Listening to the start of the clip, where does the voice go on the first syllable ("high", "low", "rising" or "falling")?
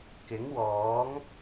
rising